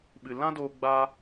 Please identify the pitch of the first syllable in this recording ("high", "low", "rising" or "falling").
low